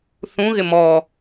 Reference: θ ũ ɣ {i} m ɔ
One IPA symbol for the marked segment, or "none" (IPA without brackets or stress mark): ɪ